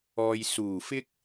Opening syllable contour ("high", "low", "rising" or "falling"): low